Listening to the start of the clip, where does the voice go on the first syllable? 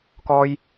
high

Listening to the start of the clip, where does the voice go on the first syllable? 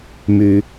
rising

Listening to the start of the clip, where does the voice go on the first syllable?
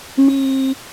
high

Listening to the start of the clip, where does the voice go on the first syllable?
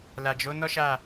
low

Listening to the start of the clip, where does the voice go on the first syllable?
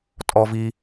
high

